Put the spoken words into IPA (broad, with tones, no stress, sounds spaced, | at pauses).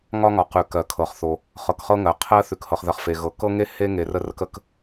ŋ ɒ˥ ŋ ɒ˨ q ʉ˩ k ɜ˩ kʰ ɤ˩ χ θ o˩ | χ ɤ˨ k χ ɤ˦ ŋ ɜ˩ qʰ ɜ˥ θ ʉ˨ k h ɤ˨ χ ð ɜ˨ χ f e˩ ɣ ɤ˩ k ɤ˥ ŋ e˥ h e˥ ŋ e˨ r ə˦ r ə˦ k ə˦ k